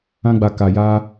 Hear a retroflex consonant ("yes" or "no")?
no